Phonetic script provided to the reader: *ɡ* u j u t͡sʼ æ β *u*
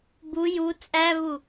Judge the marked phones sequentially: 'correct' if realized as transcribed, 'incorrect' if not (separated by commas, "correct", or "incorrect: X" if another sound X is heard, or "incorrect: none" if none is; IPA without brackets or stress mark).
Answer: incorrect: b, correct